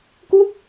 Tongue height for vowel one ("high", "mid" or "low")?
high